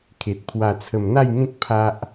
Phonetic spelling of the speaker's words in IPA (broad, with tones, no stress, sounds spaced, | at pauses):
kʰ e˨ t̚ pʰ w a˨˩ t͡sʰ ə˨˩ m n̪ a˥˧ j ŋ ẽ˦ k̚ pʰ a˦ ʔ